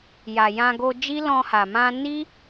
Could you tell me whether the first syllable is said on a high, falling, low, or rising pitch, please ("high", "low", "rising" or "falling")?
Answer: low